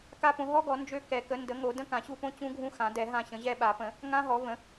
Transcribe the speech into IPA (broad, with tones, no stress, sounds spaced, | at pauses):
k a˦˥ p õ˩˥ ɦ ɔ˦˥ ɡ ɔ˩˥ n d͡ʒ ø˦˨ k ɛ˨˩˦ k ə˩˥ n d ə˩˥ ŋ o˨˩˦ d ə̃˦˥ k ã˨˩˦ ɕ u˦˨ p õ˦˥ t͡ɕ ũ˦˥ ɡʱ ũ˦˥ x ã˨˩˦ d ɛ˨˩˦ ɦ ã˦˨ ɕ ə̃˩˥ ʑ ɛ˦˨ ɓ a˨˩˦ p ə̃˨˩˦ | ŋ ã˦˥ ɦ ɔ˩˥ v ə̃˩˥